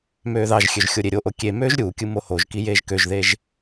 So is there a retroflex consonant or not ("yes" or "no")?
no